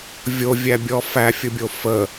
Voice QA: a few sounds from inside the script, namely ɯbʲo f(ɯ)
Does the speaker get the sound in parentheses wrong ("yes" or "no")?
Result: yes